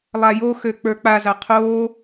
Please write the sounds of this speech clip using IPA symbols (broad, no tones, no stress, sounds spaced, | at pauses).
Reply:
lˠ a j o x ø k͡p ə˞ k͡p a z a qʰ oː